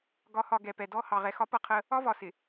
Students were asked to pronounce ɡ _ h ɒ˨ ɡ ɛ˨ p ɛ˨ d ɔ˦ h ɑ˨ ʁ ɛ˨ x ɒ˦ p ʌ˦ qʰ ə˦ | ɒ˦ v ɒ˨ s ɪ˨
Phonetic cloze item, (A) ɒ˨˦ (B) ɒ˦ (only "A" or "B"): A